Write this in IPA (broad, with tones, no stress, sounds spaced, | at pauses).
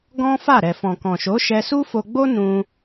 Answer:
ɡ ɔ̃˦ f a˦˨ ɾ ɛ˨ f ɔ̃˨ k ɔ̃˨ ʃ o˨˦ ʃ ɛ˧ s u˦ f o˧ ɡ͡b o˦ n ũ˧